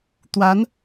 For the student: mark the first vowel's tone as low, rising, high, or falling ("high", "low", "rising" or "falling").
rising